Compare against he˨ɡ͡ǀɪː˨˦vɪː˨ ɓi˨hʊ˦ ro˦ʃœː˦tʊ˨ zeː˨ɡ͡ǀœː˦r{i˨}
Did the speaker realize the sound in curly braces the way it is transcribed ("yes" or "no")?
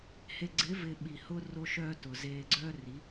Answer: no